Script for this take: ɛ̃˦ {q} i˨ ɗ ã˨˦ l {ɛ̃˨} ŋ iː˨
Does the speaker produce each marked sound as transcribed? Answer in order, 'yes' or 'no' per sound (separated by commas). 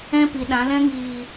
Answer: no, no